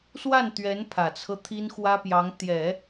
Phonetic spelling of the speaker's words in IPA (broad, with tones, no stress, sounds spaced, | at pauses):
s w a˥˩ n t̪ ɥ ɛ˧˥ n pʰ ä˨˩ t͡sʰ ɤ˦ t̪ʰ i˥ n x w ä˥ p j ɑ˧˥ ŋ t̪ j ɛ˨˩˦